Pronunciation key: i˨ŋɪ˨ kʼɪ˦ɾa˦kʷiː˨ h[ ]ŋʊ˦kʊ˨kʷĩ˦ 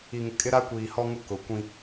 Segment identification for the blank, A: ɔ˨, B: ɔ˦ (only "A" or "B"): B